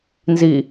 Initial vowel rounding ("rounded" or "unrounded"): unrounded